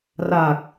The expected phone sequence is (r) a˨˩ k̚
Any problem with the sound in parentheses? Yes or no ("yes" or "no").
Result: no